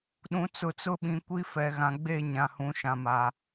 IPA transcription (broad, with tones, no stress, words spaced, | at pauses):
ɗũ˨t͡sʊ˨t͡sʊ˦ɓĩ˨ kʷi˦fɛ˨ɣã˨ ɡ͡be˦˨ɲã˨hũ˨ ʃã˨ma˨